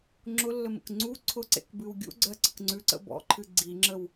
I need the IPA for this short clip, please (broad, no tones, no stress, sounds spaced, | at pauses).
ŋ͡ǁ ʊ lː ə m ə̰ k ŋ͡ǀ u ǀʰ ʊ ǀ ḛ k b ɨ w ɡʲ ṵ ɡ͡ǀ ɜ ǀ ə k ŋ͡ǀ ʉ ǀ ə̰ b ɔ̰ ǃʰ ɨ ɡ͡ǀ i ŋ͡ǁ ə w